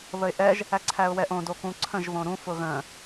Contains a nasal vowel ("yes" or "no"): yes